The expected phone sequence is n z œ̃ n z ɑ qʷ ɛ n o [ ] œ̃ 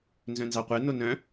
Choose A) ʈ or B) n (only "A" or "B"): B